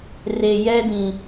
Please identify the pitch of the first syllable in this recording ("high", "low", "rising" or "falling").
low